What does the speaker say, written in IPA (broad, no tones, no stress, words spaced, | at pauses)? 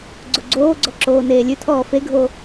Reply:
ɡ͡ǀoɡ͡ǀoːɡ͡ǀɔ ǁoːneːlʲʉtʰɔː feɡʱo